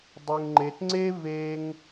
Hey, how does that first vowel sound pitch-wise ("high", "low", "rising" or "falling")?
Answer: high